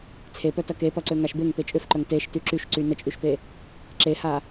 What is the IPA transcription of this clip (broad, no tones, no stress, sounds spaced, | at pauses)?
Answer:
t͡sʰ e p œ t ɐ k e p ɐ ǀ ø ŋ a ʃ b e ŋ p e t͡ʃʼ ʏ f ǃ œ ŋ t e ʃ t y ǁ y ʃ ǀ y n ə t͡ʃʼ y ʃ p e | ǁ e h a